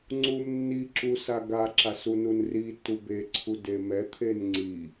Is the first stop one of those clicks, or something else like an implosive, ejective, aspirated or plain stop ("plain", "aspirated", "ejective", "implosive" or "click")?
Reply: click